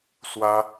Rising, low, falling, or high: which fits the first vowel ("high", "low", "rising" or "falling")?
high